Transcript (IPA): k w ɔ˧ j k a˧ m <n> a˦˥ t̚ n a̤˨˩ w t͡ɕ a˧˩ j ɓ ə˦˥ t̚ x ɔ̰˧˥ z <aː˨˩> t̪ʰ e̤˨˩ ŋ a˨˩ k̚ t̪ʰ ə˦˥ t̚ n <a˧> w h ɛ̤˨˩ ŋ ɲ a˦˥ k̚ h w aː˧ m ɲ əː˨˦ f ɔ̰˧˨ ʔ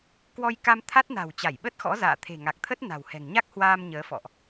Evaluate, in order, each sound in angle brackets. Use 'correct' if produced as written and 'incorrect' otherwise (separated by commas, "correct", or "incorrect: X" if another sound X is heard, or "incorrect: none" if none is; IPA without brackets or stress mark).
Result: incorrect: t̪ʰ, incorrect: a̰ː˧˨, incorrect: a̤˨˩